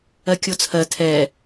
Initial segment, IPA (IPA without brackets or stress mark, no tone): ɜ